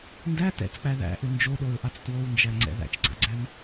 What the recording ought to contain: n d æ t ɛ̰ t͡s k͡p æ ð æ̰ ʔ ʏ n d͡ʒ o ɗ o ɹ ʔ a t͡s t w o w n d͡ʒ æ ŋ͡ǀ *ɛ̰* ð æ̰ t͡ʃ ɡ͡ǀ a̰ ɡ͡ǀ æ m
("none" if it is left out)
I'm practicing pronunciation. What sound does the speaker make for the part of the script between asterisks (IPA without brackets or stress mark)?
ɛ̰